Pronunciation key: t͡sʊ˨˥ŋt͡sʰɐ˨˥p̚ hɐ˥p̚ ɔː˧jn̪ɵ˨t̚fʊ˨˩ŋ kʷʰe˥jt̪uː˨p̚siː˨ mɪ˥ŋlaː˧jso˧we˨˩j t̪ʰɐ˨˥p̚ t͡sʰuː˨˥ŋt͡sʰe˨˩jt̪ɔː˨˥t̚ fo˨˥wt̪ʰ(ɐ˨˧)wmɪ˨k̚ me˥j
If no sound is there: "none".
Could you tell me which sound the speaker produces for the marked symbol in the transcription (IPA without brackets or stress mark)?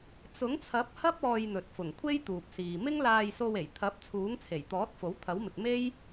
ɐ˨˥